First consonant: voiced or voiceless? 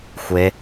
voiceless